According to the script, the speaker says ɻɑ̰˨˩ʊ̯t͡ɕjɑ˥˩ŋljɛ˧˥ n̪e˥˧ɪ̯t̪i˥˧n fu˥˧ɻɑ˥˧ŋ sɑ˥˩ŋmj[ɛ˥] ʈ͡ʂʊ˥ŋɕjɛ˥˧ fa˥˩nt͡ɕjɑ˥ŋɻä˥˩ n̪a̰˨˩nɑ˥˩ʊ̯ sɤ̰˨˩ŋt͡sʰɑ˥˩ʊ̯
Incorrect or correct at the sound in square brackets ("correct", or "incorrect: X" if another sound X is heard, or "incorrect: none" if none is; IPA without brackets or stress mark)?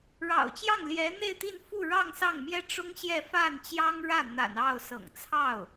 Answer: correct